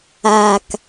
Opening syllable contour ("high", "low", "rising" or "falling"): low